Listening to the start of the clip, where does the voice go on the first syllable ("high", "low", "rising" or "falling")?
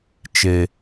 low